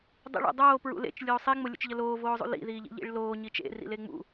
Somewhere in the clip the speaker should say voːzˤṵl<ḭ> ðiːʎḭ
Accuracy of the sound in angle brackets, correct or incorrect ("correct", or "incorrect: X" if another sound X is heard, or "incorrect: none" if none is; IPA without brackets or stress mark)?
correct